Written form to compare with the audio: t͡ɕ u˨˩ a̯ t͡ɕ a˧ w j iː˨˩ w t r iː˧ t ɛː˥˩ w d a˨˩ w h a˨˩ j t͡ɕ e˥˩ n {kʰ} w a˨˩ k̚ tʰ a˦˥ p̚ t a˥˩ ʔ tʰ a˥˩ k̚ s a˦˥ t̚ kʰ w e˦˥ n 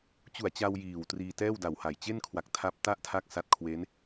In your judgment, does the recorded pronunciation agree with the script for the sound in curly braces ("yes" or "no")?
yes